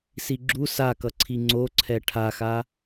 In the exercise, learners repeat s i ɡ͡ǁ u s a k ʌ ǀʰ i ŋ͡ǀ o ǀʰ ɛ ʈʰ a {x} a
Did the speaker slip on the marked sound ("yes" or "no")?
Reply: no